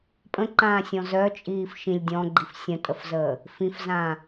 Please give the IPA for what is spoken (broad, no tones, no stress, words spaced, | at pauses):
pʼə̃ǃãːsʲɔ̃z œt͡ʃʼiːf ʃĩlʲ dʲɔ̃ɡ͡ǃif sʲə̃tʼəfzəː | fĩfzãː